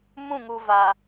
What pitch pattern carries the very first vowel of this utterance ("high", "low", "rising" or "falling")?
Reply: falling